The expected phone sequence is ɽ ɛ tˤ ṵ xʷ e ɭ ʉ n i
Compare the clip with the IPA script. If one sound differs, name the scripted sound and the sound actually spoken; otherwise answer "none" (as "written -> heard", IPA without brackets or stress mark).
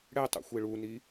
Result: ʉ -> u